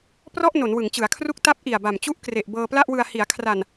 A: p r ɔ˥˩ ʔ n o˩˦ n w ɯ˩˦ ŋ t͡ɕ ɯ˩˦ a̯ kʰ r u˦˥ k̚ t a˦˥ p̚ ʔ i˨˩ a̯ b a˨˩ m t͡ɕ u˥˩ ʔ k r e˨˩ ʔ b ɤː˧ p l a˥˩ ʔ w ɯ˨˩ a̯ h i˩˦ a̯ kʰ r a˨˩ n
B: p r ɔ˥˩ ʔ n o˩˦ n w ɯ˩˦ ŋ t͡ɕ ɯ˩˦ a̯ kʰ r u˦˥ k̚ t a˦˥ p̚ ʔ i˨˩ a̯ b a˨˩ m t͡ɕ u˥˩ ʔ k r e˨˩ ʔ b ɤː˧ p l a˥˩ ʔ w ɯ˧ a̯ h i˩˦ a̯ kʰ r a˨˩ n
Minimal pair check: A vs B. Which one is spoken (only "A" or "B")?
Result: B